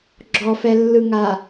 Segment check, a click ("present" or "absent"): present